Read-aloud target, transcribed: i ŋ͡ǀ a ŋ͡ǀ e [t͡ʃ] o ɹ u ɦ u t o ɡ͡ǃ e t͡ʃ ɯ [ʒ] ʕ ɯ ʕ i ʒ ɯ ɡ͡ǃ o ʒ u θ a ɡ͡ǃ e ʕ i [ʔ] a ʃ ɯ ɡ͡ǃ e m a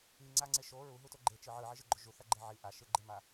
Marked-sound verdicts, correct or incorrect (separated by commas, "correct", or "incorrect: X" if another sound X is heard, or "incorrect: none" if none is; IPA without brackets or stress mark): incorrect: ʃ, incorrect: none, correct